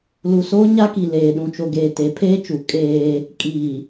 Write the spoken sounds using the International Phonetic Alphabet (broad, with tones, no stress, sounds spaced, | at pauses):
l u˨ s oː˦ ɲ a˦ k i˨ l eː˨ ɗ ũ˨ t͡ʃ o˨ ɡ eː˨ t e˨˦ pʰ eː˦ t͡ʃ u˨˦ kʼ eː˦ | kʼ iː˨